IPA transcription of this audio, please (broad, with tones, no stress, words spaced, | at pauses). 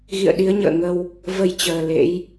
ɣḭ˧˨ə̯ɗi˨˦ə̯ɲə̰ː˧˨ŋə˧w | və˧jt͡ɕəː˨˩ lḛ˧˥j